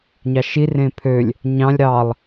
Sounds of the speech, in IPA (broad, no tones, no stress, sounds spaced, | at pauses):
ɲ ɑ ʃ i r ẽ pʰ ø lʲ | ɲ ɑ̃ lʲ ɾ ɑ lˠ